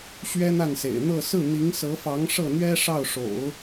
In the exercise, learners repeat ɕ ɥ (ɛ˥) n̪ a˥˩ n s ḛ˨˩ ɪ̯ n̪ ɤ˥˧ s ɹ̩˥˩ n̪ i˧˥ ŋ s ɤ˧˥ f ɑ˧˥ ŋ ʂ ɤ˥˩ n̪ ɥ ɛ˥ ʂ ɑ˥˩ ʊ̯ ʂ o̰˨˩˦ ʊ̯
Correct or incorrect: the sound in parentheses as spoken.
correct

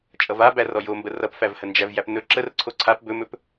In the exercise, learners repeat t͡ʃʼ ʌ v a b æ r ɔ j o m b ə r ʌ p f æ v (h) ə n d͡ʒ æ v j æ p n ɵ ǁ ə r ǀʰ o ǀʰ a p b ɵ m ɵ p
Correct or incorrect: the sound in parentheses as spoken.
correct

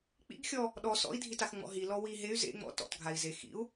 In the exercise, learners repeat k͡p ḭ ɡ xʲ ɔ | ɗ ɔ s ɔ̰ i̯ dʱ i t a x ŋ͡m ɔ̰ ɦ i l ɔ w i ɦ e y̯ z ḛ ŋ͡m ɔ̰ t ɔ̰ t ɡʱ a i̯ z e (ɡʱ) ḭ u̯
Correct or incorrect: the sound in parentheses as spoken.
incorrect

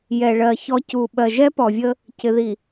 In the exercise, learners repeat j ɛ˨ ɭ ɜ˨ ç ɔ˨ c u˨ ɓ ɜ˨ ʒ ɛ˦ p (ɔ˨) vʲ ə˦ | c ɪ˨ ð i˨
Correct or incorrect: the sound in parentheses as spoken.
correct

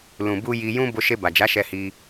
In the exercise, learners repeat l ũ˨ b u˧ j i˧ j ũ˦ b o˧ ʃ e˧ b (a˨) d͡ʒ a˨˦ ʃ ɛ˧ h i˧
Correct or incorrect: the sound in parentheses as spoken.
correct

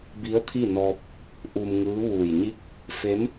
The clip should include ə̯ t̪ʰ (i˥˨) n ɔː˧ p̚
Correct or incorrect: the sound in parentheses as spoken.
correct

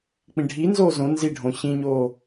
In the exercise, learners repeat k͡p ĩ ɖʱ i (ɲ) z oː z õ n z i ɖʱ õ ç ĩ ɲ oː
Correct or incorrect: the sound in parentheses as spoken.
incorrect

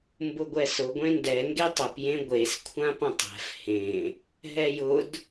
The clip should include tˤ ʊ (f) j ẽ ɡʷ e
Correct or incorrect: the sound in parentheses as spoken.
incorrect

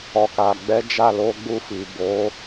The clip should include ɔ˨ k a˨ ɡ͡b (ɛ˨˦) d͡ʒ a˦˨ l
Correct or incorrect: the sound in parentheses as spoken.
correct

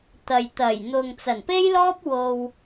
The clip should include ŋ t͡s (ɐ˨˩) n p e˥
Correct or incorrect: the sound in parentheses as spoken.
correct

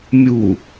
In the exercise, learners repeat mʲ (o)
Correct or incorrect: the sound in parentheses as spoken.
incorrect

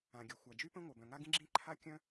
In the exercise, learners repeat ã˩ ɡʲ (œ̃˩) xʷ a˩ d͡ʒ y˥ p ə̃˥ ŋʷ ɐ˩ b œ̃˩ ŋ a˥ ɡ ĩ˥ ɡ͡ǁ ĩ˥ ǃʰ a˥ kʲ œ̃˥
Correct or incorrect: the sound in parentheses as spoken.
incorrect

